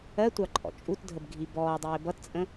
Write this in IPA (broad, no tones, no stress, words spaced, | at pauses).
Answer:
ɜtʷɑ ǃʼɔ̰t͡ʃʼutdʱəb ɡʱibɔːdˤɪː bʌtt͡sʼə̃